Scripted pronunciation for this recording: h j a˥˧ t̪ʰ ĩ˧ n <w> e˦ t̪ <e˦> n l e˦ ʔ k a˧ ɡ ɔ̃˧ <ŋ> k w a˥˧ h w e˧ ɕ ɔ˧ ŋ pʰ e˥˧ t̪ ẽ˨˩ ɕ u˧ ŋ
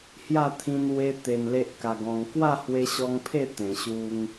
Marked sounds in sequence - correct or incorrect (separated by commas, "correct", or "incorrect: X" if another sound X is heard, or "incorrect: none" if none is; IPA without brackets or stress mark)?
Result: correct, incorrect: e˧, correct